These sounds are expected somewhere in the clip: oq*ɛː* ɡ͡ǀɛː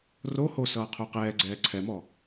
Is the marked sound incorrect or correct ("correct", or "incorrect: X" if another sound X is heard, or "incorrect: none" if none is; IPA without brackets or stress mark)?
correct